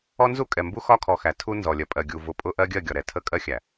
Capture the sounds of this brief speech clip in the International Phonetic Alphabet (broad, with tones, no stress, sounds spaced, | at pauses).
ɔ˦ n z u˦ kʼ ɛ˨ m b u˦ x ɒ˦ kʰ ɔ˨ x æ˨ tʰ u˦ n z ɔ˨ lʲ ɜ˨ pʼ ɜ˨ ɡʲ u˨ v ʊ˨ pʼ ʊ˦ ʔ ɜ˦ ɡʲ ɜ˦˨ ɡʲ ɒ˨ ɾ ɛ˨ tʰ ə˦˨ kʼ ɜ˦ xʲ æ˨